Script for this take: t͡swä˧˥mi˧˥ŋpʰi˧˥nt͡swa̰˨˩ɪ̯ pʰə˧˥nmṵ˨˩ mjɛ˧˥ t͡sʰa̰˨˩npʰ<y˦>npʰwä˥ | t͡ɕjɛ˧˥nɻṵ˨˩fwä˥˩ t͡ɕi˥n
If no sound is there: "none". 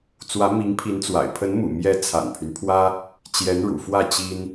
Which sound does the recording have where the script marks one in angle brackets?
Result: y˦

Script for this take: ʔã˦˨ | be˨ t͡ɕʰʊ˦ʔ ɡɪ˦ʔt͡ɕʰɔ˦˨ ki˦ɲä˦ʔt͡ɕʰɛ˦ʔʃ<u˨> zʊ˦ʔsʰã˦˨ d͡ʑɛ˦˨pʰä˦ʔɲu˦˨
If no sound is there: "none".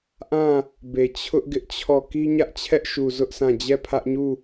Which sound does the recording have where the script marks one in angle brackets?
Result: u˨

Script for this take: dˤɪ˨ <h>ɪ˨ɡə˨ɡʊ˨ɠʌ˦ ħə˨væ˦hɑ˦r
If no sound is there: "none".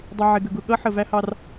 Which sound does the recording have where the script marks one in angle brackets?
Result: ʕ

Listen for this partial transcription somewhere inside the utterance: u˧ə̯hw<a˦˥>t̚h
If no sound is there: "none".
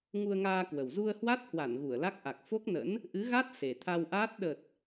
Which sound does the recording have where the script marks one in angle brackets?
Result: a˦˥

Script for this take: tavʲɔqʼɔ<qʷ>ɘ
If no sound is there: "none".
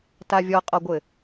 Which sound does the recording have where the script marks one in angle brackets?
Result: ɡʷ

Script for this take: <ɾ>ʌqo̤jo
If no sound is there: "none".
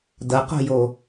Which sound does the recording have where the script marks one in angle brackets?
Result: d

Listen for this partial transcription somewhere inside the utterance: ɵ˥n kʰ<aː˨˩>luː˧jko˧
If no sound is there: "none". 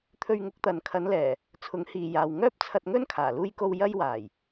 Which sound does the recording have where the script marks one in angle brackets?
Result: aː˨˩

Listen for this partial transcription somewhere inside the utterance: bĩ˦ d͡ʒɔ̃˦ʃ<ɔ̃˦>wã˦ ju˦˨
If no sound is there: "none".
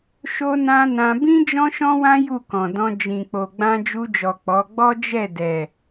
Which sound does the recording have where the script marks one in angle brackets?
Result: ɔ̃˦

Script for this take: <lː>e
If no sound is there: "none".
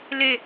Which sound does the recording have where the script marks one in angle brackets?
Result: l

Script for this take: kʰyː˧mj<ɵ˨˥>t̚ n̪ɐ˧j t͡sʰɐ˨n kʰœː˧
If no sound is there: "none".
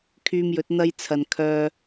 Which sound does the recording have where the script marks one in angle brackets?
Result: ɵ˨˥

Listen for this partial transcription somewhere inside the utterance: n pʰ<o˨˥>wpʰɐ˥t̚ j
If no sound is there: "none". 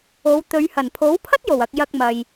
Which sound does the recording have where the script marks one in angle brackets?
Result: o˨˥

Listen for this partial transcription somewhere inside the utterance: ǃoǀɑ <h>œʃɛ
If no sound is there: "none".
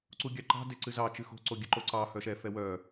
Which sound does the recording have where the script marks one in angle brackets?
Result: h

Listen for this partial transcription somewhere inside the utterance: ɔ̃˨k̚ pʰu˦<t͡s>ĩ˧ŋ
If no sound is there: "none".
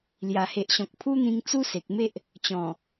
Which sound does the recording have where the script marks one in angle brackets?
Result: n̪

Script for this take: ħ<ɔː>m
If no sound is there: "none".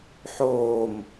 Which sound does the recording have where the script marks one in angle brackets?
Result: oː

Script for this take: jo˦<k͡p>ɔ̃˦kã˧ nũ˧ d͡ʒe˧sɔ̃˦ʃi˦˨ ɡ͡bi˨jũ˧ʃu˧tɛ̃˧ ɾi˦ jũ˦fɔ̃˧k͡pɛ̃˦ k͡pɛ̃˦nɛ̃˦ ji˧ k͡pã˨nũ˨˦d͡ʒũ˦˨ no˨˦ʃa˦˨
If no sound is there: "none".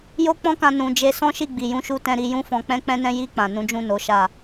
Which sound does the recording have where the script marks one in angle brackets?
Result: k͡p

